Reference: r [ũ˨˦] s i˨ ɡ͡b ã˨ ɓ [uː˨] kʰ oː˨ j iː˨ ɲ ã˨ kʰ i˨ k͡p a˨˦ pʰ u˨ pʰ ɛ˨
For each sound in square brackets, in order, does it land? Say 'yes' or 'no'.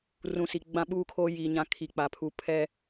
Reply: no, yes

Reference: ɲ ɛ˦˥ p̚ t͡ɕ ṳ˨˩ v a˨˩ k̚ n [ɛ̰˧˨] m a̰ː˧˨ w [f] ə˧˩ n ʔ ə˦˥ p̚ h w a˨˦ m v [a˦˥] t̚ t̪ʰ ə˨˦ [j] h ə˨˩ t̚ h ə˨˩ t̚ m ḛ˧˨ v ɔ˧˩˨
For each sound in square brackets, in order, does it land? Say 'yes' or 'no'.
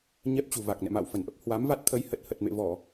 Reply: yes, yes, yes, yes

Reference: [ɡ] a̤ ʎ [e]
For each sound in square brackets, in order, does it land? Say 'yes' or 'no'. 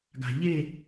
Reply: yes, yes

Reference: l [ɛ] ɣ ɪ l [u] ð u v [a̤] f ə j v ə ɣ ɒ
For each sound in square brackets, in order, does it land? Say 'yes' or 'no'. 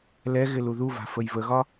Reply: yes, yes, yes

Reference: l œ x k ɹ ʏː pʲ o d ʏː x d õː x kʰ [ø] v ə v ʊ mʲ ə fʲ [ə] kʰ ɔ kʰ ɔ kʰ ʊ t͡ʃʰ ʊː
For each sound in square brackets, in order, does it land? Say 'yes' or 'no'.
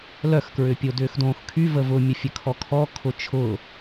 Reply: no, yes

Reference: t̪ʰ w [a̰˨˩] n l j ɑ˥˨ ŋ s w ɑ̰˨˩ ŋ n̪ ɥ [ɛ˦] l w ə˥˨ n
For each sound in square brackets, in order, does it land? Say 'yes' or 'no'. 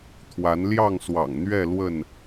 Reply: no, no

